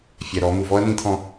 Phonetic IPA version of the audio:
fʲ ɛ˨ ɾ ɔ˨˦ m u˨ v ɔ˦ ɐ̯ n̪ ĩ˦ t̪ʰ ɔ̃˦

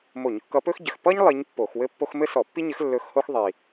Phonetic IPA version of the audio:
m o˧˩˧ ɲ kː ʌ˧˥ p ɵ˥ x ɟ ɘ˨˩ x p ʌ˥ ɲ lˠ i˧˥ ɲ pː o˧˩˧ x w ɘ˥ pː o˥ x m ɘ˥ s ɔ˧˩˧ pː i˥ ɲ ɘ˧˥ x lː ɵ˧˥ x h o˥ x ðˤ i˨˩

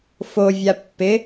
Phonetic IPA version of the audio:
f o vʲ a pː ɪ

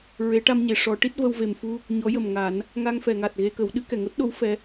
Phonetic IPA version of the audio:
ɹ e˨˩˦ ʈ a˧ m ɲ e˨˩˨ ʂ ɔ˧˥ ʈ i˦˥ t̚ v ə˧ w v e˨˩ m f u˧ | ɲ ɔ˧˥ j ə˨˩ m ŋ a˨˩˦ n | ŋ a˧ ŋ f ɛ˨˩˨ ŋ a˨˩ t̚ ɣ e˧ k ə˨˩˦ w ɗ ɨ˨˩˦ k ɛ˨˩˨ ŋ o˦˥ t̚ ɗ o˧˥ w f ɛ˧˥

